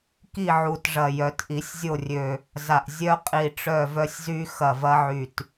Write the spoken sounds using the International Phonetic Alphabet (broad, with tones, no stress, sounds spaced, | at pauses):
k i˦˨ ʕ u˨˩ t ʐ ɐ˨˩ j œ˨˩˦ t ʔ i˨˩˦ sʲ zʲ o˦˨ rʲ ø˨˩ | z a˨˩ ʔ zʲ œ˦ qʼ i˨˩ ʈ͡ʂ œ˦˨ v œ˦ sʲ z y˦ x ɐ˨˩ v ɐ˦ ʕ y˨˩ t